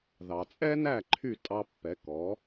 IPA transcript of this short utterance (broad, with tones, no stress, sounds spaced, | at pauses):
ð ɑ˩ t͡sʼ ɛ˥ n æ˥˩ ǃʰ y˥˩ tʼ ɑ˧ pː ɛ˩˥ k ɔ˩˥